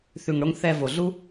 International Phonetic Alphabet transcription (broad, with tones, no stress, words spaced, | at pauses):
θʉ˨ŋɽo˧ŋ θɛ˧ vo˨ɮu˦